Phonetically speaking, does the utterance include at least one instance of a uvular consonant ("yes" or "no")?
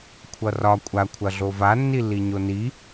no